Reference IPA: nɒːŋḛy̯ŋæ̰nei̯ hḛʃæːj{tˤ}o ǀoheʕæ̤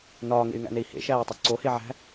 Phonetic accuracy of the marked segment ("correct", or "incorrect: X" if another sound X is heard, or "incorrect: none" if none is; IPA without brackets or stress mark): correct